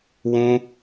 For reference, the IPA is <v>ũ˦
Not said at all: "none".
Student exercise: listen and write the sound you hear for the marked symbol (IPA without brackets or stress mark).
w